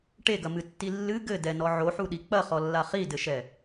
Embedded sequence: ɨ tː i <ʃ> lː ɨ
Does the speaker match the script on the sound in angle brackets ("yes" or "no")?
no